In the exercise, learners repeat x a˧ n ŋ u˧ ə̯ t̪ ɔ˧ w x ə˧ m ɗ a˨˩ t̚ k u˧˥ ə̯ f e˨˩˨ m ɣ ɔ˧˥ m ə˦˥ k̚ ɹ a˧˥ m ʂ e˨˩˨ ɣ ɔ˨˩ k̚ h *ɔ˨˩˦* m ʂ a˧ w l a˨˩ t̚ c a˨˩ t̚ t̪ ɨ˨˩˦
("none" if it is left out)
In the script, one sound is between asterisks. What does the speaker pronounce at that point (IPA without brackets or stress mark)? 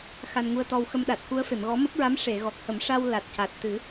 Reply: ə˨˩˦